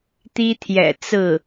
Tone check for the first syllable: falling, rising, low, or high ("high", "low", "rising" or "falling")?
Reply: high